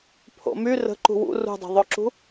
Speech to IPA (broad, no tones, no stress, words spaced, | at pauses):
pʰo̰my rə̤ ǃṳwṵ rṳdˤə̤ðˤoǁṳ